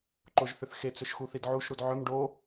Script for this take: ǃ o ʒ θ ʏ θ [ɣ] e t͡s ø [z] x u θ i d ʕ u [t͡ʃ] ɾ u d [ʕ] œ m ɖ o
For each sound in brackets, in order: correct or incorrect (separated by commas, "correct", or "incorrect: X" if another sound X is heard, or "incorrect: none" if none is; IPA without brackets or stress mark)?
incorrect: x, incorrect: ʃ, incorrect: ʃ, correct